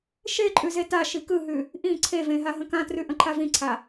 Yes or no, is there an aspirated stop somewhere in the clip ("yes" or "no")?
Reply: yes